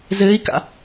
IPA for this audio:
z ɘː i̯ k a̰

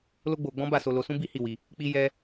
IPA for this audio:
l o˦ ɡ͡b o˧ ɡ͡b ɔ̃˦ b a˦˨ s o˧ l o˧ s ũ˦ b i˦ h i˦˨ w i˧ | k͡p i˦ j ɛ˦

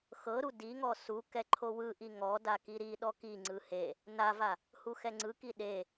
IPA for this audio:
x ɤ ɾ u d i ŋ ɔ s u k ɛ ǃʰ o w ɯ ʔ i ŋ ɔ d a k i ɾ i ɗ ɔ k i ŋ͡ǀ ɯ h e | n a v a | h u x ɛ ŋ͡ǀ ɯ k i ɗ e

